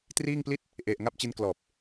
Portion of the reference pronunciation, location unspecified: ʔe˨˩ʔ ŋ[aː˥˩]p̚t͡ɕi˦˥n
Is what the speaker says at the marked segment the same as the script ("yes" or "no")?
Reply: no